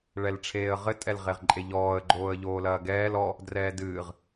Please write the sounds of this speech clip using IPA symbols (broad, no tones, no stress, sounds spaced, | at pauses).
ɭ ɛ l ʈ͡ʂʰ eː ə̯ ʁ ɘ tʼ ɛ l ʁ e ʁ ǃʼ e ʎ ɔː ə̯ ɡ͡ǃ oː ə̯ ʎ oː l ɐː ɡ ɛː l ɔ | d r ɛː d ɨː ʁ